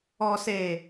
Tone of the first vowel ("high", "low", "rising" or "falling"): low